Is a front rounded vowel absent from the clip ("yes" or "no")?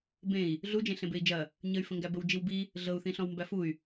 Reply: no